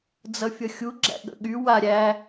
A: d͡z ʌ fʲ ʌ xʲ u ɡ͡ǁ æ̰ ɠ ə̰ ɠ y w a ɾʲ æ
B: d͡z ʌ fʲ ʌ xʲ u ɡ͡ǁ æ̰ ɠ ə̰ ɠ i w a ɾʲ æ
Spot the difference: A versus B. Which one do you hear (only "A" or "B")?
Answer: A